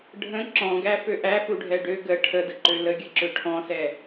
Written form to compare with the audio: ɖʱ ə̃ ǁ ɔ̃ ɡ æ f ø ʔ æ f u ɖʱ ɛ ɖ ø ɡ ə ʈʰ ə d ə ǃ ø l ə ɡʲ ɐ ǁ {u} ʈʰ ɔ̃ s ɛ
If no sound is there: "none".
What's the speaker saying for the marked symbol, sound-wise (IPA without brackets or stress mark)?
ø